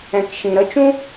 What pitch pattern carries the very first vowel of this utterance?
low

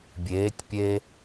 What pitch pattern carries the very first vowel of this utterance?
rising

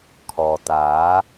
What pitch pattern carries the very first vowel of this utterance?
low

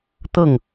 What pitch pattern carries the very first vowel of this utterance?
falling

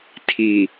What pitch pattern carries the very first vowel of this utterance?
low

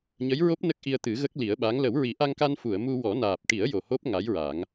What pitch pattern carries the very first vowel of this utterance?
rising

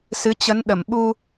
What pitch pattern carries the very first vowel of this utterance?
rising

